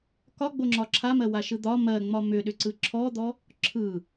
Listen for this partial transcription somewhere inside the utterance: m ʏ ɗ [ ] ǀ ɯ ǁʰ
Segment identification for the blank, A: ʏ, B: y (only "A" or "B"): A